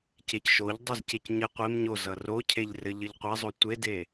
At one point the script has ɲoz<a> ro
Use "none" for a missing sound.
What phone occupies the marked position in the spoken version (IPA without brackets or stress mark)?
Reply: ʌ